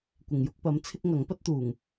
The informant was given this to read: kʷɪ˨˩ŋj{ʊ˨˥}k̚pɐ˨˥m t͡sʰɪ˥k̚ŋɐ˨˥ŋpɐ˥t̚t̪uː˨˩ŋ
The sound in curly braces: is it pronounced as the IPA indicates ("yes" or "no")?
yes